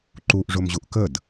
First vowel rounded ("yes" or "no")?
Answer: yes